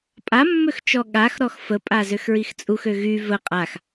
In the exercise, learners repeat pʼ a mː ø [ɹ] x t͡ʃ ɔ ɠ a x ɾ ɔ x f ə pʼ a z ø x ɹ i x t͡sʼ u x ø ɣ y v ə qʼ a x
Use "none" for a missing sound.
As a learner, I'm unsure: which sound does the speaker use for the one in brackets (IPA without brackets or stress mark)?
none